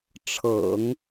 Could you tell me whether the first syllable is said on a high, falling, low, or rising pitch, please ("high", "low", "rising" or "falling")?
low